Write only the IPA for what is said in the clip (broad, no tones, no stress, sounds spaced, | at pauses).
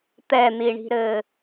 t̪ ɛ n̪ i ɳ i̤ ɾ ɘː